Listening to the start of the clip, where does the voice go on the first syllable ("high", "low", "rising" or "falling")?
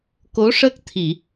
rising